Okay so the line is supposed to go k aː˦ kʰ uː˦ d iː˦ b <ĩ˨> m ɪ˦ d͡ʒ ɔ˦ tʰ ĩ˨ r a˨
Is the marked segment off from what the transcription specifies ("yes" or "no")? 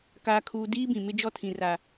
no